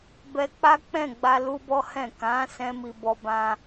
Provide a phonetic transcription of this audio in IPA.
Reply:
bɛ˧k͡pa˦k͡pɛ̃˦˨ɡ͡ba˧ lu˦bɔ˦hɛ̃˦˨ kã˨˦ sɛ̃˦mi˧ bɔ˦bã˦

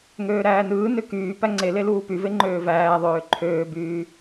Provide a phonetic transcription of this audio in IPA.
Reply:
ŋøːɾæːnɯːnø kyː pæŋ͡ǀele luːpyve ŋ͡ǃøːvæːðˤøː ǃʰøːbyː

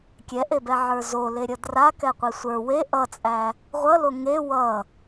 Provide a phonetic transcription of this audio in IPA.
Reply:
kʲɛʔebɛʕə˞ zoleɾʲʌ drakɛqʷi sʷə˞ we ʔʌt͡sʼæ | ʁʷʌlo ŋe wʌ

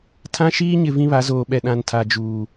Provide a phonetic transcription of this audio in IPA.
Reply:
tʰã˦ʃiː˦ɲɪ˨ vĩ˦βa˨˦ zoː˨ɓɛ˨ ɗã˨ntʰa˨d͡ʒuː˨

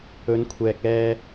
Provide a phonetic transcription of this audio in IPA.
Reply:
ɵ˨˧nkʷʰɛː˨k̚ɛː˧

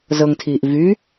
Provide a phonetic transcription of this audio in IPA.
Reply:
zɤŋtʰiːʔ vy

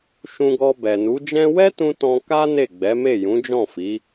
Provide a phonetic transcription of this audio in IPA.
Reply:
ʃũ˧ɡɔ˧ bɛ˨nu˨˦d͡ʒɛ̃˦ wɛ˦tũ˧ tɔ̃˧ka˦ ne˦˨ɡ͡bɛ˨˦me˦˨ jũ˨˦d͡ʒɔ̃˦˨fi˨˦

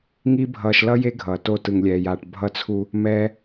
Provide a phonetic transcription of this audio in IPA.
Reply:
ŋi˦bʱʌː˧ʃlʌ˦ je˦ɡʱʌː˨ to˧tɯ˨ŋlʲɛː˨jaː˨ʈ bʱʌ˦˨t͡sʰu˦ | mɛː˦

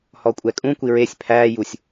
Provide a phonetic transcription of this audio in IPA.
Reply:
hɔkʷʼɛkʼũkʷi ɹesʲ pʰæːjusʲ

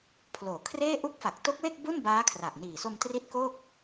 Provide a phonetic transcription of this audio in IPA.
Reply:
pʰloː˩˦kʰreː˥˩ ʔu˦˥k̚fa˨˩k̚to˦˥k̚we˥˩k̚ bu˥˩nbaː˦˥kʰra˨˩ʔniː˨˩ so˧mtri˦˥t̚ ko˥˩k̚

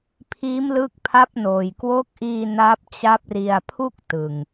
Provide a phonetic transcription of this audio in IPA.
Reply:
pʰiː˦˥mlɯː˦˥k̚pʰa˦˥p̚noː˨˩j kwo˦˥k̚ʔiː˧ na˦˥p̚t͡ɕa˦˥p̚ri˧a̯ pʰu˥˩k̚tɯ˨˩ŋ

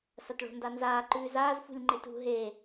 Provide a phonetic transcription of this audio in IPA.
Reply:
sɐtɭo̤ndanzaː ǃʉːzaːz fṳlʲŋ͡ǃetṳ ɦe

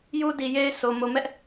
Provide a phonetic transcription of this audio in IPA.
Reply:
ju˦di˨je˦ɪ̯ sʰo˨ mo˨mɛ˦ʔ

